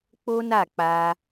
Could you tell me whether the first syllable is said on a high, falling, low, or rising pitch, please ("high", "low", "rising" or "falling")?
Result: high